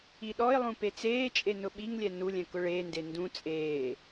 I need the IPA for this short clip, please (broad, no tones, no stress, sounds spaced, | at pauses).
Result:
i ɗ ɔ ɪ̯ lˠ ũ p e t͡s eː t͡ʃʼ e n ʊ ɓ i ŋ lʲ ɛ n u lʲ ɛ̃ k ʊ ɭ eː n d e n d ũ t͡sʼ eː